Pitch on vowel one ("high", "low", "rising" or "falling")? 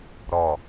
low